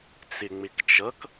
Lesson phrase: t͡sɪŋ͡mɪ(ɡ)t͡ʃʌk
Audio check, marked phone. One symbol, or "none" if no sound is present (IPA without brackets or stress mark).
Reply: k